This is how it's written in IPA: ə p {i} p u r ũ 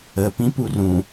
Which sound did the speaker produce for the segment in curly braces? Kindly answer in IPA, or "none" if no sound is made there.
ĩ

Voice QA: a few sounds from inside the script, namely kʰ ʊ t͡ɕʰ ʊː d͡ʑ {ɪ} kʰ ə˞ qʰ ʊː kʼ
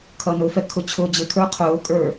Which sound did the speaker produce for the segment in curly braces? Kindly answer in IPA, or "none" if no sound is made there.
ɪ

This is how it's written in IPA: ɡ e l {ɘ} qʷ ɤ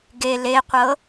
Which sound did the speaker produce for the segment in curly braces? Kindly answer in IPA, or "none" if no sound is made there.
e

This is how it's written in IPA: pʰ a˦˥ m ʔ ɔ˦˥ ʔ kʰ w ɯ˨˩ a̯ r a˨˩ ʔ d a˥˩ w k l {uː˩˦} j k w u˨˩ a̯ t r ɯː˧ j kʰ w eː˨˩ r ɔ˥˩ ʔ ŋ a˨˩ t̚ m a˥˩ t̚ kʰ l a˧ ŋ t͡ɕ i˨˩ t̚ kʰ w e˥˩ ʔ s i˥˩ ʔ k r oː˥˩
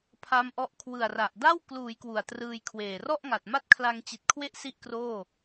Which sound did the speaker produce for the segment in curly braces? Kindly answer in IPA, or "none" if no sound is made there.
uː˩˦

